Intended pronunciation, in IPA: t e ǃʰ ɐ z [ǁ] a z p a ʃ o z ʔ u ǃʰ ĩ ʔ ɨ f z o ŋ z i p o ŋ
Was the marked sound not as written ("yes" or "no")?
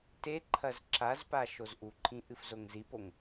no